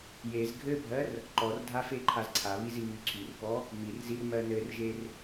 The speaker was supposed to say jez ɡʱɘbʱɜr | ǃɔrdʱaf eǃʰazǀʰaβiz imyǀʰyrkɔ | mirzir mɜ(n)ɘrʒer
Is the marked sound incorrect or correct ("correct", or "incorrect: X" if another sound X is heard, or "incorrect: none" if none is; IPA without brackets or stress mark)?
correct